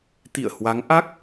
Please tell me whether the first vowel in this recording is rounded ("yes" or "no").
no